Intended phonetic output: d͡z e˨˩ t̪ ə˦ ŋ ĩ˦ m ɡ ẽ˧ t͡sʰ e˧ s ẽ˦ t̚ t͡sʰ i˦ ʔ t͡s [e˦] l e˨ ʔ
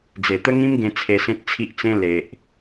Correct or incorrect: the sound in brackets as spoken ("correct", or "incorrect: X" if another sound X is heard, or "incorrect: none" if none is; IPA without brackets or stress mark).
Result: incorrect: ẽ˦